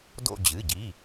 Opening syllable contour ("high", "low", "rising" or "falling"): falling